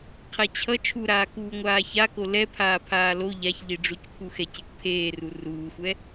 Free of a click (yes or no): yes